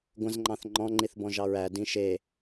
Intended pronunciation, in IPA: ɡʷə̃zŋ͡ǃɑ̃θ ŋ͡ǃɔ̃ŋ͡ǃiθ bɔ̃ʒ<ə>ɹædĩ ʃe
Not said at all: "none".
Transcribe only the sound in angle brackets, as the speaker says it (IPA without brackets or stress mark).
ɑ